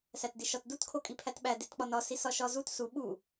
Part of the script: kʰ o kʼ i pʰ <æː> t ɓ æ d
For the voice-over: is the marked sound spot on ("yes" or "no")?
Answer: no